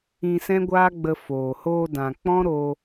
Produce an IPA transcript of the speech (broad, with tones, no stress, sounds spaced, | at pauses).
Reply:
ĩ˧ s ɛ̃˦ ɡʷ aː˦ ɡ͡b ə˧ f oː˨ h oː˧ d ã˨ k͡p ɔ̃˦ ɾ o˧